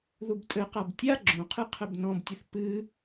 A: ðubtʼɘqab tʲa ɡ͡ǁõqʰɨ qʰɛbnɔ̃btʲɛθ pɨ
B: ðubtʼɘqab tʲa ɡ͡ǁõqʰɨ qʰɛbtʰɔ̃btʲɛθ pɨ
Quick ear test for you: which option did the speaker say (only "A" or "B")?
A